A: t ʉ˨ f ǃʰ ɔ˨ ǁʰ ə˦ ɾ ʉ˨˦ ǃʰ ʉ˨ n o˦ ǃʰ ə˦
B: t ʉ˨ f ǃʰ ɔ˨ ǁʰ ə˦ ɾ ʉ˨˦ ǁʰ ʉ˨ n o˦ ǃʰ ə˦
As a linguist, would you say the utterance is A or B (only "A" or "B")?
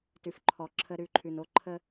A